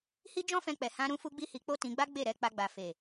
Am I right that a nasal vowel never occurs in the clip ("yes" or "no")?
no